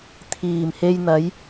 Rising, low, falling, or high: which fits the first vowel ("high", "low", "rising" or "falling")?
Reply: low